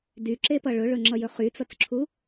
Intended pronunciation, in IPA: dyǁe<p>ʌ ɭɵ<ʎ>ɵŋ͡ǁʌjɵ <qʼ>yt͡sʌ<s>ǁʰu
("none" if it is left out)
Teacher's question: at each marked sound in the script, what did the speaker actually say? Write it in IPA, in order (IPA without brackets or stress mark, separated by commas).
p, ɭ, χ, t͡s